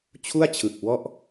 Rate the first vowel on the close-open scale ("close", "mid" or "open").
close